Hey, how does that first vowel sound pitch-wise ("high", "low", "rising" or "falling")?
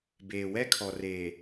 low